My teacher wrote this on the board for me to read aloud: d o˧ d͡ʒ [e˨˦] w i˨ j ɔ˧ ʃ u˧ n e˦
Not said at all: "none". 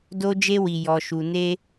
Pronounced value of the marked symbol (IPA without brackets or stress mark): e˧